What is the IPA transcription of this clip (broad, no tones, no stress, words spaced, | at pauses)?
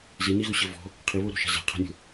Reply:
ziniɣuɕɘ vɔ̤ | qʰiβoɾo̤ʃa̤ za̤qʰa̤nʲo̤